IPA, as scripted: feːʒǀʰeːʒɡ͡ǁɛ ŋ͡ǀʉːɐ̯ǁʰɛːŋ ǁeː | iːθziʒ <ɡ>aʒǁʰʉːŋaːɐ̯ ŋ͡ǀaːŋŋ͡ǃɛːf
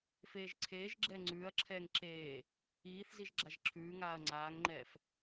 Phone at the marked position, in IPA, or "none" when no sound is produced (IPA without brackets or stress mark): ɡ͡ǁ